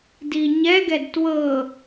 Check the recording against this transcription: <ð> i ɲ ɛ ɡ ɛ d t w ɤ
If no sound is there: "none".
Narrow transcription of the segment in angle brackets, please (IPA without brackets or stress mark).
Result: d